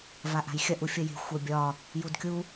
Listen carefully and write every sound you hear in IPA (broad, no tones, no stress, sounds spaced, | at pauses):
v a ʔ a̤ j xʲ ɐ ʔ u fʲ ə j e̤ xʷ ə bʲ ɒ | j u d kʲ u